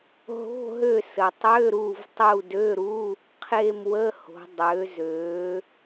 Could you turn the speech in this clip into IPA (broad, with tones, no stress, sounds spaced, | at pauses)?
ɦ o̤˧˥˧ ɦ ø˦˨ s ə˩ tˤ ø˧˥˧ ɾ u˦˨ v tˤ u˦˨ d ø˧˥˧ ɾ u˧˥˧ | qʰ e˦˨ m w ə˧˥˧ h o̤˩˧ dˤ ø˩˧ z ø˩˧